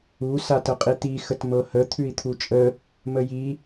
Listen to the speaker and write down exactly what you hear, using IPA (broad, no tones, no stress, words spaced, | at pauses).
u satəqʼit̪i xətmɤhə t̪ʰʉi̯t̪ʰut͡ʃʼə | məji